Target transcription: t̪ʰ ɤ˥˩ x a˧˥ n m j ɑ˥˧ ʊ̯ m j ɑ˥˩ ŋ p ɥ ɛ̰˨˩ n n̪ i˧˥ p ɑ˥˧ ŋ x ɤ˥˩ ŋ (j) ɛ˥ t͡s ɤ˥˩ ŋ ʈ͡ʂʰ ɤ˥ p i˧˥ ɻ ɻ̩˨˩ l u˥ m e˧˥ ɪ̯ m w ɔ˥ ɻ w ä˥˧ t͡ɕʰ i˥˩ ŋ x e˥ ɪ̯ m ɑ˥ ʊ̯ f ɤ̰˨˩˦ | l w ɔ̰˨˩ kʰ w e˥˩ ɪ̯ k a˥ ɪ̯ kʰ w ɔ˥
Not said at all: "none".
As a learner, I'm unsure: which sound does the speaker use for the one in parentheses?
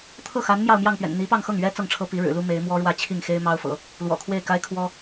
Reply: ɥ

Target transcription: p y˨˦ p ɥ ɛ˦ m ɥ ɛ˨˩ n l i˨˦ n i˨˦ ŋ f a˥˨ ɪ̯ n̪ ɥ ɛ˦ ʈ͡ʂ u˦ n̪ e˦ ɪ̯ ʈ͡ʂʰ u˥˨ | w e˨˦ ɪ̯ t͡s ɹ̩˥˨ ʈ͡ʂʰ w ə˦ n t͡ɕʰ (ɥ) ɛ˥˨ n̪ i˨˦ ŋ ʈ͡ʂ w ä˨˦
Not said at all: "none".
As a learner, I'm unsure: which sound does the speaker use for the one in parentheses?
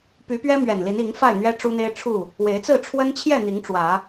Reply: j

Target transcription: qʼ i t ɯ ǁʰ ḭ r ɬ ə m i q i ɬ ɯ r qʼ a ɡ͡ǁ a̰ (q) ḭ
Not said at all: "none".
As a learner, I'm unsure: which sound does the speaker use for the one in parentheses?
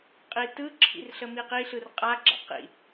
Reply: q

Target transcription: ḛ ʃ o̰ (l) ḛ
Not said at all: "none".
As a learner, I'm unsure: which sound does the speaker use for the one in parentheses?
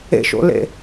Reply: l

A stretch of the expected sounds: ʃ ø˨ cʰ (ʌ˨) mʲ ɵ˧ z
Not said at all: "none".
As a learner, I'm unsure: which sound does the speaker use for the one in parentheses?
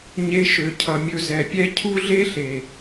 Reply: ʌ˨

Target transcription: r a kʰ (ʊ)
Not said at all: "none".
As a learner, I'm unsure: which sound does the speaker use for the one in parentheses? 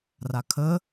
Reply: ə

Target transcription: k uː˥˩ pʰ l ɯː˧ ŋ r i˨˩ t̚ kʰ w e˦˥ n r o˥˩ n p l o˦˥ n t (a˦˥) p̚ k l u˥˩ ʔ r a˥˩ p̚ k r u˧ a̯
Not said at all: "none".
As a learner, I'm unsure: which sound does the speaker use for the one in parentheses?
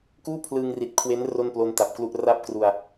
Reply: a˨˩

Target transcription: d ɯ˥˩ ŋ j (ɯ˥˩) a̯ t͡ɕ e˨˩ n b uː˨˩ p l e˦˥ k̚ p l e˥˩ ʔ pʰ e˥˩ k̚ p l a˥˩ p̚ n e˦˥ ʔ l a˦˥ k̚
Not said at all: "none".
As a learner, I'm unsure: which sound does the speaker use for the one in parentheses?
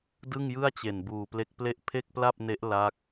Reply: ɯ˥˩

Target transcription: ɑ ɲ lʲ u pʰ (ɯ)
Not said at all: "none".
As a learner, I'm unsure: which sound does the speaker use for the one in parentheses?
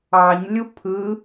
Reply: ɯ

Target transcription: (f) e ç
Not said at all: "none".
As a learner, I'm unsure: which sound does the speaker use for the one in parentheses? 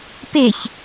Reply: p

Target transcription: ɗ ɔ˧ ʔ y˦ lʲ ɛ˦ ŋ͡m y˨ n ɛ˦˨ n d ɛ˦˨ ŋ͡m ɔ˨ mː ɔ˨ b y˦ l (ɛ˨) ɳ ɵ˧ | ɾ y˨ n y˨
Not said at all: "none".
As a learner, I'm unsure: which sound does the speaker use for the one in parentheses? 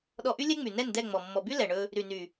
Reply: ɛ˨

